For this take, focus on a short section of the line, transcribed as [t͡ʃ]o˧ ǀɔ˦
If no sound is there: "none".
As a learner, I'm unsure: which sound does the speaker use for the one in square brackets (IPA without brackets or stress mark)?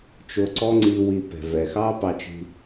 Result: t͡ʃ